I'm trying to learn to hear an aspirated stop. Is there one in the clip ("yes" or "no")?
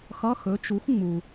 no